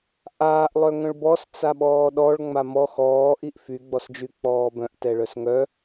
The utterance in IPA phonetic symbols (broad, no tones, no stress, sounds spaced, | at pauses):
ʔ aː ʔ lˠ œ ŋ œ̃ ɭ b ɔ s t͡s a ɓ ɔː ɗ ɔ ɭ ŋ͡m a m ɔ x ɔː ʔ i ʔ f y ɡ͡b ɔ s d͡ʒ y k͡p ɔː b œ̃ ʔ t ɛ ɭ œ s ŋ œ